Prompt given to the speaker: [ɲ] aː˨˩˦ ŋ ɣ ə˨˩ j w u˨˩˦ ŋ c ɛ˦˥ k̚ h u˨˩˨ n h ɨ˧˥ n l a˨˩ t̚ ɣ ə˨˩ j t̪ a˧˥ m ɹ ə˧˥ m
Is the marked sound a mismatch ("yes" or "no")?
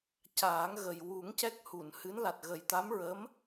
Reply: yes